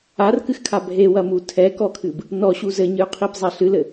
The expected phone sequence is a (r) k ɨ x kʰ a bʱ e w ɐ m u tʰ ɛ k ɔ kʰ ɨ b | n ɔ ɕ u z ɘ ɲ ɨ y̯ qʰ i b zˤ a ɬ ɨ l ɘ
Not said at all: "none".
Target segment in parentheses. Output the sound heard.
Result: r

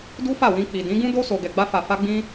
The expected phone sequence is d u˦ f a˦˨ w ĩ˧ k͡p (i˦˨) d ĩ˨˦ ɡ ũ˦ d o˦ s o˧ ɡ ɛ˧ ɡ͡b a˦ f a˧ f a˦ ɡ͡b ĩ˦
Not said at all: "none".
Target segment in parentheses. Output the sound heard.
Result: i˨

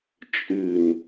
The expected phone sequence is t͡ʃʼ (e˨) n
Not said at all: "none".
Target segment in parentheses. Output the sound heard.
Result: ɨ˨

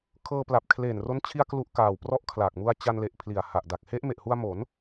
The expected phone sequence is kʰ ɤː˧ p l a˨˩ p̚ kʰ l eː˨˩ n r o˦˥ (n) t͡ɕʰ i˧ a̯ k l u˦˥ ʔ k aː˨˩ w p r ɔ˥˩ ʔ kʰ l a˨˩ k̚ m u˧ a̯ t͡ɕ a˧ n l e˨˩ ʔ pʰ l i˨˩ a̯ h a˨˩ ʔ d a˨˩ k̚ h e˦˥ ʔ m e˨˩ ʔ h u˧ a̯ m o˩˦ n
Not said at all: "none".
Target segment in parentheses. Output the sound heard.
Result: n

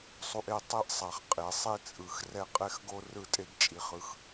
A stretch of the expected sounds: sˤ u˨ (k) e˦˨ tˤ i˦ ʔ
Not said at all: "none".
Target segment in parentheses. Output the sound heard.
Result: ʔ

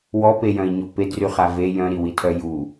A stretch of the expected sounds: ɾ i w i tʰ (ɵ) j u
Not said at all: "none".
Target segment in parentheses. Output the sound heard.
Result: œ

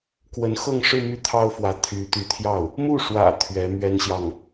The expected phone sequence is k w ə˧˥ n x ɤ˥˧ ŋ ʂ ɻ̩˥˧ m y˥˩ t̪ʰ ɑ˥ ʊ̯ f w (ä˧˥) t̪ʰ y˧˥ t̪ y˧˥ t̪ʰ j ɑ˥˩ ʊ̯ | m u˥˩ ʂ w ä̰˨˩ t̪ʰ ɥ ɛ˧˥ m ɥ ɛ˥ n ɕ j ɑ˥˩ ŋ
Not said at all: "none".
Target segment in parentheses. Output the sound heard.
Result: ä˧˥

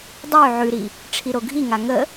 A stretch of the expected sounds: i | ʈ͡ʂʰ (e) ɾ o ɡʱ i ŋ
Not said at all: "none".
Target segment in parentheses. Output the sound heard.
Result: i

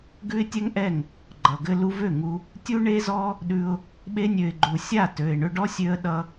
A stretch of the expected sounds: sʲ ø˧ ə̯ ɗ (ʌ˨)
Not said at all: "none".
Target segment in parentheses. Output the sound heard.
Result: ʌ˧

